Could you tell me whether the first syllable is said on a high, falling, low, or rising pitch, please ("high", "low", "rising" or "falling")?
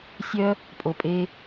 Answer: high